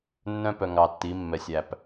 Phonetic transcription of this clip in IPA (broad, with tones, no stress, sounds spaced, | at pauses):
nː œ̃˦ p œ˨ ŋ ɑ˨ tː i˨˦ mː ɛ˨ sʲ æ˨ p